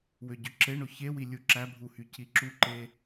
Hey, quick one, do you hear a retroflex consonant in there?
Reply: yes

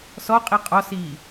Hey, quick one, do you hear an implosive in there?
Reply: no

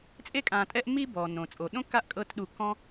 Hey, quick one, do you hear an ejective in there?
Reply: yes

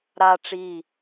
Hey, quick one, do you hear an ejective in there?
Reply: no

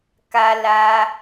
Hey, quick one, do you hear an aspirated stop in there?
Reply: no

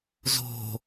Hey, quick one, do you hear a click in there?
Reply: no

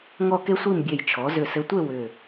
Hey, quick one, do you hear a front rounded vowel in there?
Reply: yes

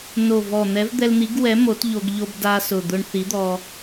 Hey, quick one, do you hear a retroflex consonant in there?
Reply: yes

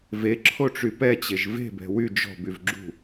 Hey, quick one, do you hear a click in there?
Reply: yes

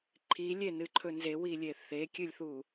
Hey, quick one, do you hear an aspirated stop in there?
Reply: yes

